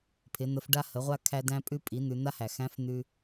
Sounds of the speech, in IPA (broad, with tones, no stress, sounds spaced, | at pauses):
pʰ ɪ˩˧ n̪ ə˩˧ f ɖ a˧ h ə˩˧ ʁʷ a˧ kʰ æ˧ d æ̃˧ pʼ ʉ˧ pʼ i˩˧ n̪ ʉ˩˧ n̪ a˥ h æ˩ x æ̃˧˥ f n̪ ʉ˧